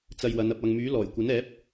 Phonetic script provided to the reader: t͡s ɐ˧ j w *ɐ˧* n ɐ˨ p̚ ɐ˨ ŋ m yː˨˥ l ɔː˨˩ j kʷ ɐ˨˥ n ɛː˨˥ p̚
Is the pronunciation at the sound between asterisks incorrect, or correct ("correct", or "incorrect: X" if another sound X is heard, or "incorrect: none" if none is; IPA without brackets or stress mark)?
incorrect: ɐ˨˧